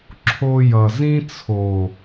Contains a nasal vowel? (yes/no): yes